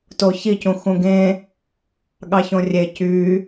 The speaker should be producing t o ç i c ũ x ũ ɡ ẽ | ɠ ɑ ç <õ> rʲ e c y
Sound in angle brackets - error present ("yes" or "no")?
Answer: no